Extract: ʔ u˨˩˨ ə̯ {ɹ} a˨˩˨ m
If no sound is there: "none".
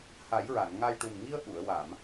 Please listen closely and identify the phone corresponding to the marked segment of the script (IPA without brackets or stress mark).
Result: w